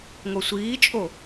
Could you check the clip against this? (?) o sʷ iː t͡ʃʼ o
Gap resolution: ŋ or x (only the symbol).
ŋ